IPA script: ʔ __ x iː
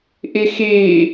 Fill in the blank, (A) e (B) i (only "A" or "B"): B